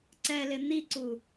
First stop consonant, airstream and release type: click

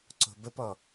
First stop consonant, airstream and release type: click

